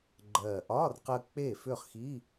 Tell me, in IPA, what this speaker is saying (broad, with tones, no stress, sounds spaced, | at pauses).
ɡ͡ǃ ɜː˨˩ ʔ ɒː˧˥˧ r q ɜ˧ k͡p e˥˩ f ʏ˥˩ χ x i˧˥˧